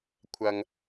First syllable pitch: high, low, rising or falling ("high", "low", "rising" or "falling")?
low